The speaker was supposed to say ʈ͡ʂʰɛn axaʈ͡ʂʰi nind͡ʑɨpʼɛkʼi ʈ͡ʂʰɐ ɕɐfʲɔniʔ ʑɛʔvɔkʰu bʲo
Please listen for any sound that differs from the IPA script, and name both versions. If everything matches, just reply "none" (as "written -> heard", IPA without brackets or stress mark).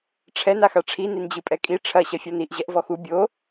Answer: kʰ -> x